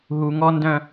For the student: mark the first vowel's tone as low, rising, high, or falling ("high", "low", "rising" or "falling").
low